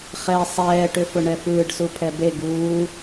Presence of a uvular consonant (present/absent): present